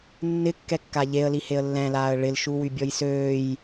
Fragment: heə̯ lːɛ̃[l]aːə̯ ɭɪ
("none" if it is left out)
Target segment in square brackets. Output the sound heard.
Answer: l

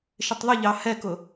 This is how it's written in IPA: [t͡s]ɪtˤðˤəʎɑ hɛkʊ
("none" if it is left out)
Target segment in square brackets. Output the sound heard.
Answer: ʃ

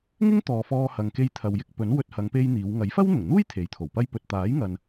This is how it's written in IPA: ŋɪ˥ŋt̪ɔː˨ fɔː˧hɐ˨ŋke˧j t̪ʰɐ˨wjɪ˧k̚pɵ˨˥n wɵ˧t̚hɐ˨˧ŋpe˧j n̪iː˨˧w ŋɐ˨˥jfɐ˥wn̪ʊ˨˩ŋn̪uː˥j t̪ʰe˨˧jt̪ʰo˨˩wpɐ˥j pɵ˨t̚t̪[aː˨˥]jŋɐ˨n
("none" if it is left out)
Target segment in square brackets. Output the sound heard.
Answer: aː˨˥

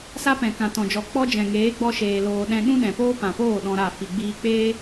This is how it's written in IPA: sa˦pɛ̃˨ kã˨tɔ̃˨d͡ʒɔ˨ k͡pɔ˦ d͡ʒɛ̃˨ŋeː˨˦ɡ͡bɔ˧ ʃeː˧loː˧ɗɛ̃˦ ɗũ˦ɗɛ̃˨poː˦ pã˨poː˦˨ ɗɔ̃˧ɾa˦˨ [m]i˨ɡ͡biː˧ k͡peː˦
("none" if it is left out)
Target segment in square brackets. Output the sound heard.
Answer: f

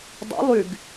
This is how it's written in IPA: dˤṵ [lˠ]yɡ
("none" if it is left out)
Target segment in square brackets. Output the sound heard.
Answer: lˠ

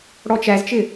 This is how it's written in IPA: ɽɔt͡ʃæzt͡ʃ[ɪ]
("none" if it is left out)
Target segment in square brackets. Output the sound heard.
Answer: ɪ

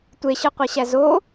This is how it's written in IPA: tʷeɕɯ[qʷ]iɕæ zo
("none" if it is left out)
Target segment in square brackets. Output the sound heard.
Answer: qʷ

